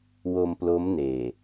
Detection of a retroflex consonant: absent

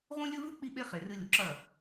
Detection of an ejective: absent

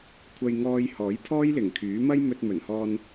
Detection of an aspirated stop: present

